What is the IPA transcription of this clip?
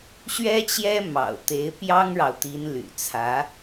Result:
ɕ ɥ ɛ˥ t͡ɕ j ɛ˥ m ɑ̰˨˩ ʊ̯ t̪ e˧˥ ɪ̯ p j ɑ˥ ŋ ɻ ɑ˨ ʊ̯ t̪ i˧˥ n l y̰˨˩ t͡sʰ ä˧˥

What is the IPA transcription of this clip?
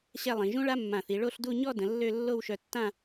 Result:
ɕ ɛ˥˧ lˠ ĩ˩˧ ʒ ũ˥ ɭ a˥ mː ã˧˩ θ i˩˧ ɭ o˥˧ ɬ d u˥˧ ɲ ɔ˥˧ d ə̃˩˧ lː ø˥˧ lː o˥˧ w ʃ œ˧ tː ã˥˧

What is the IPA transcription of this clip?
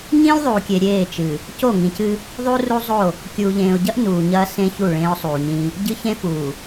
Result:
ɲ ĩː˦ lʲ ðˤ uː˨ kʲ e˨ ɾʲ eː˦˨ t͡ʃ ɨ˨ | c o˦˨ ŋ ĩ˨ c ɨ˦ | ðˤ u˦ r u˦ zˤ o˦˨ | kʲ uː˨ ʎ ẽː˨ ʊ̯ ɟ ɐ˦ ʔ n uː˨ ɲ ɐː˦ s ẽ˦ ç u˦˨ ɭ ẽː˦ ʊ̯ sˤ uː˨ ɲ ĩ˦ | ɟ ɨ˦ ç ẽ˦ f uː˨

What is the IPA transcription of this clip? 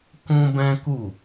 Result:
k ũ˦ b ɛ̃˦ k u˦˨

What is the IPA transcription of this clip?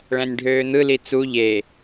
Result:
ɭ æ̃ nʲ ɖʱ øː n̪ ɯ l i t͡s u ʎ e

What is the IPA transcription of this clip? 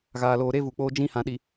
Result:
ɣ aː˨ l oː˨ ɾ e˦ v uː˨ k͡p oː˦ d͡ʒ ĩ˦ h ã˨ ɗ i˨

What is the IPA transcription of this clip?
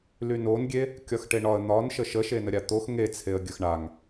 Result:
l y n o n ɡʲ e | kʲ ɒ x ʈ e ɳ ɒ ə̯ n̪ ɒ n ʃ ə ʃ ə ʃ e n ə ɾʲ a t̪ o x ŋ e t͡sʰ e ə̯ ɡʲ ə x ɳ a ŋ

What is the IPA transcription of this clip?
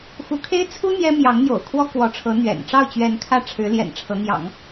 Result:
x u˧˥ kʰ e˥ ɪ̯ t͡sʰ u˥ n̪ j ɛ˥ m j ɑ˧˥ ŋ n̪ j o̰˨˩ ʊ̯ kʰ w ɔ˥ k w ɔ˧˥ ʈ͡ʂʰ ɤ˧˥ n̪ ɥ ɛ̰˨˩ n ʈ͡ʂ ɑ˥˩ ʊ̯ t͡ɕ ɥ ɛ˧˥ n kʰ ä˥˩ ʈ͡ʂʰ ɻ̩˧˥ l j ɛ̰˨˩ n ʈ͡ʂʰ ɤ˧˥ n̪ j ɑ̰˨˩˦ ŋ

